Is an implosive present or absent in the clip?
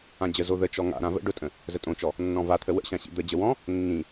absent